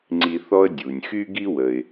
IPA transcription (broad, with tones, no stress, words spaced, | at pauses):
ŋ͡ǀi˨ θɔ˥ə̯ dʲu˩nʲ xy˥ɡi˥ wə˩ɪ̯